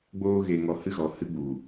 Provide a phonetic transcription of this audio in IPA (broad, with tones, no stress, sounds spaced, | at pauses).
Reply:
ɡ͡b oː˧ ɣ e˨ ŋ ɔ˧ h ɨ˦ ɣ ɔ˨ h ɨ˧ ɡ͡b u˨